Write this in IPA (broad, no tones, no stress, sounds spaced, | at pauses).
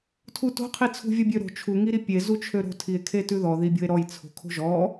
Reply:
tʰ u t o̤ qʰ i t͡sʰ ṳ vʲ ɔ bʲ ø ɾ o̤ t͡ʃʰ u ŋ i ɾ i pʲ e z u t͡ʃʰ ø ɾ o̤ tʰ i e̯ kʰ e t ʉ ð ɔ ð i bʲ o̤ e̯ ɾ ɔ j t͡sʰ o̤ kʰ o̤ ʒ ɔ